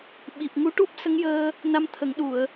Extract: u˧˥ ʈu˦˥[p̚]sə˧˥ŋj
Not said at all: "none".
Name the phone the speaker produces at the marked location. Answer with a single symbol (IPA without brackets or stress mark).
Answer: p̚